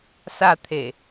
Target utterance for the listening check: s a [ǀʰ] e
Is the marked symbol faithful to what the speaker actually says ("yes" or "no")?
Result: no